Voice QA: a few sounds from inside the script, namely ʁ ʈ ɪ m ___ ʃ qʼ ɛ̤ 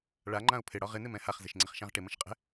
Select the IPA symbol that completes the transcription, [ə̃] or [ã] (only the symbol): ə̃